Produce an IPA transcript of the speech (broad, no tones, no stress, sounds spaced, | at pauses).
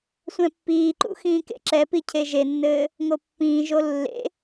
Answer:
sʷ ɛ̃ pː iː ǃ ṵ x ĩː k ḛ ǁ ɛ p i cʰ e ʒ e nː ɘː | ŋ o pː ĩː ʒ o lː ḛ